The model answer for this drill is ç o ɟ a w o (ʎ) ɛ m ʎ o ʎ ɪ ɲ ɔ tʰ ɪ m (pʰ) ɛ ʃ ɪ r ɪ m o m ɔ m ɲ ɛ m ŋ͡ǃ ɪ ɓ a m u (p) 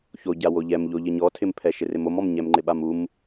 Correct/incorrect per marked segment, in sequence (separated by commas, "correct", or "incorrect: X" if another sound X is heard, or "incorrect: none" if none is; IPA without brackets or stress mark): correct, correct, incorrect: m